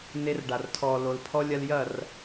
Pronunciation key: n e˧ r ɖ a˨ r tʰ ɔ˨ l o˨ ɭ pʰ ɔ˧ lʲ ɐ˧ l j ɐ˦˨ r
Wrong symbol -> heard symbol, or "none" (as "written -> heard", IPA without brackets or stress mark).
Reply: ɭ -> l